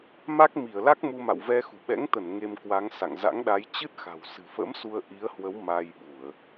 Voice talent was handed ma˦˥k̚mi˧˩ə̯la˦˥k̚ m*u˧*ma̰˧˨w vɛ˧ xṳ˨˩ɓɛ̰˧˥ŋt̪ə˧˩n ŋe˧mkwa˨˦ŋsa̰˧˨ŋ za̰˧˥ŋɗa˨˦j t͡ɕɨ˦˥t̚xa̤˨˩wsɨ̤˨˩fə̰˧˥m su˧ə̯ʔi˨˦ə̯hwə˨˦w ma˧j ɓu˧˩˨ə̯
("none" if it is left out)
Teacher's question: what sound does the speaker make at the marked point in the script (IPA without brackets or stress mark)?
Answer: u˧